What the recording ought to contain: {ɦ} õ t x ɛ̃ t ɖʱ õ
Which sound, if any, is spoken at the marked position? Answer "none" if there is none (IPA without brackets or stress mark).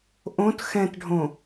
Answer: ʔ